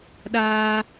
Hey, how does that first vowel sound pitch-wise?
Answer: high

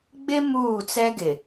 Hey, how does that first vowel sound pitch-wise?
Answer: high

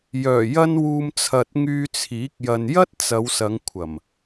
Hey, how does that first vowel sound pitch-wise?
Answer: low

